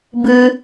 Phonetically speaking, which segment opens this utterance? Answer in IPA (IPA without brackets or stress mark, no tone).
b